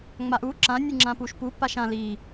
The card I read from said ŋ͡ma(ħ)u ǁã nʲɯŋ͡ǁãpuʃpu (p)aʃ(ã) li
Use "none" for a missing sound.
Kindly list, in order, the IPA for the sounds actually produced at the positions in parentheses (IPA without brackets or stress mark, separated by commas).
ʔ, p, ã